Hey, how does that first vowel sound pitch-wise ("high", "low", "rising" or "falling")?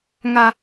high